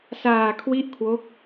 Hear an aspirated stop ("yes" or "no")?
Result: yes